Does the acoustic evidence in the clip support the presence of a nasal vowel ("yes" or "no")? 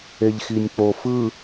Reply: no